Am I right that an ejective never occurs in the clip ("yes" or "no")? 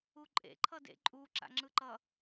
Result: no